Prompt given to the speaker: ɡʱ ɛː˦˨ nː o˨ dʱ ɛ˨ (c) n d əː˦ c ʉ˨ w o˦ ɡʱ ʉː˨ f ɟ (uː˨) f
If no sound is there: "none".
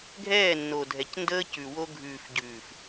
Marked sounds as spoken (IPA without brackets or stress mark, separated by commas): c, ʉː˨